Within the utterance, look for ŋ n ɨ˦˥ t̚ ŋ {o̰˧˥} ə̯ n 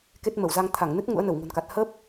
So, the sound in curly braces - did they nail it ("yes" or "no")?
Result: no